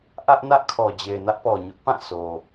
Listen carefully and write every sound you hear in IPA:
ʔ ä˦ ʔ n ä˦ ʔ kʰ ɔ˨ d͡ʑ e˨ ɪ̯ n ä˦ ʔ p ɔ˨ ɲ ʊ˦ ʔ p ã˦˨ sʰ o˨

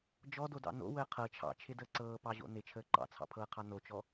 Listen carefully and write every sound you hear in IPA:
d͡ʒ ɔ d o d ɑ̰ n o̰ w əː qʰ ɤ t͡ʃʰ ɑ̰ t͡ʃʰ ɪ d əː ǀ ɤː p ɑ ʑ o̰ n ɪ t͡ʃʰ əː ǃ ɑ̰ t͡sʰ ɑ̰ pʰ ɤː qʰ ɑ n o t͡ʃ ɔ

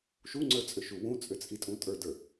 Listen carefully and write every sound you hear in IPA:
ʃ u ŋ͡ǀ ə˞ t͡sʼ ʏ ʃ u w ũ t͡sʼ ʏ t͡sʼ i tʼ ũ tʼ ə˞ d ə˞

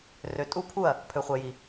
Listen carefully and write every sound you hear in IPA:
r ø˨ tʼ u˦ pʰ u˦˨ ɐ̯ | pʰ ø˨ χʷ ɛ˨ j i˨

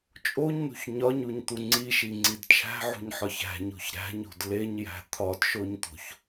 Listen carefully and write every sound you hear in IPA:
t͡ʃʼ o ɲ n ṳ ç ɲ ɒ ɲ u ɲ t̪ u ŋ͡ǀ i ʃ i ŋ͡ǀ i d t͡ʃʰ æ̤ ʕ ṳ ɲ ħ ɒ ç æ̤ ɲ o̤ ç ɾ æ̤ ɲ o̤ d l e ɲ j æ̤ t̪ʰ ɒ d ʃ o ɲ t̪ o̤ ç

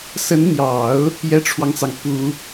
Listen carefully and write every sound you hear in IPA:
s ə˧˥ n n̪ j ɑ˨˩˦ ʊ̯ | j ɛ˥ ʈ͡ʂʰ w ɑ˨ ŋ t͡s ɑ˩ ŋ p u˨˩˦

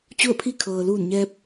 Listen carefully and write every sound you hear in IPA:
t͡ɕ u˥˨ ə̯ pʰ i˥˨ kʰ ɤː˩ l uː˧˩ n ɲ ɛː˧ p̚

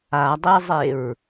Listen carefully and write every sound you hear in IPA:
a dˤ e zˤ e ɹ

